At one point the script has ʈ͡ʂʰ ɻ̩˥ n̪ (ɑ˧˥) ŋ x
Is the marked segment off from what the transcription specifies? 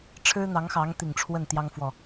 no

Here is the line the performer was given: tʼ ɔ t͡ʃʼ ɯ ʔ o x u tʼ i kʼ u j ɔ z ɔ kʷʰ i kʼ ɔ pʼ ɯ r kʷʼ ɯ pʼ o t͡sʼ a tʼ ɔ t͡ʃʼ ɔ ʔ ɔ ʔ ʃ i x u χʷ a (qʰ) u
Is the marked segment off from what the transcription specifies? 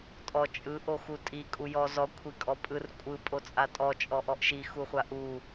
yes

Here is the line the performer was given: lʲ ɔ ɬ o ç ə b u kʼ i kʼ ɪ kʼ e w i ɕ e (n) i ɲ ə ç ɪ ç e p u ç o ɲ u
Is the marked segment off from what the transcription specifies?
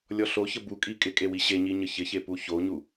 yes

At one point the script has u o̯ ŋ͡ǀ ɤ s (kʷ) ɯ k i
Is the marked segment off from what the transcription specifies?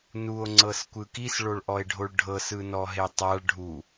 no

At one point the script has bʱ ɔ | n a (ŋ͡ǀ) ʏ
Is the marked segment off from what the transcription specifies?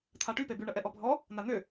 yes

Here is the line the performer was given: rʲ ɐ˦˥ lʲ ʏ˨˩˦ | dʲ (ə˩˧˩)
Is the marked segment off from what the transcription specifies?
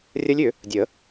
yes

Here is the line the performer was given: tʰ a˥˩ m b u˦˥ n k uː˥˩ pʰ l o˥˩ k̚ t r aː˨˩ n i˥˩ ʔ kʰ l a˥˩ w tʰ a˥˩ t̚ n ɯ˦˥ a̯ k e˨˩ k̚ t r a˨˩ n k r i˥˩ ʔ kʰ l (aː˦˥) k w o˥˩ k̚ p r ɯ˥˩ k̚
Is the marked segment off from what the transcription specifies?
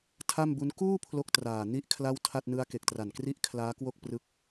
no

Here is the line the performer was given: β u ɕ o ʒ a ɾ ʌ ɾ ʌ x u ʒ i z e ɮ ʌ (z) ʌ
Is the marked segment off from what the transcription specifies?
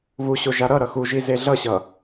yes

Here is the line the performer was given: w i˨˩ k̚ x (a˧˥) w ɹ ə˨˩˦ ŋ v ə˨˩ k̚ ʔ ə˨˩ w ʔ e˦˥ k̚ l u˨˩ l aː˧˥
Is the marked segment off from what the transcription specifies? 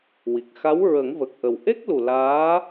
no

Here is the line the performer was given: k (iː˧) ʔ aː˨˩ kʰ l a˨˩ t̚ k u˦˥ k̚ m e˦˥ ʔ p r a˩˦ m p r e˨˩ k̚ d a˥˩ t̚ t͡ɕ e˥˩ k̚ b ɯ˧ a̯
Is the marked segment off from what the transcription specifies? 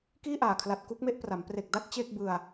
yes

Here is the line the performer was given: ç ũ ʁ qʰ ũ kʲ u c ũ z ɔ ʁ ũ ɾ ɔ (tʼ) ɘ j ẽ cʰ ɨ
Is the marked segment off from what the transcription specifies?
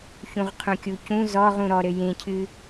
yes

